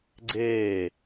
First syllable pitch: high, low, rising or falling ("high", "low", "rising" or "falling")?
falling